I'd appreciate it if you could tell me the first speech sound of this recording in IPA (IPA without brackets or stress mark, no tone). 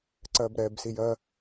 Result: ǀ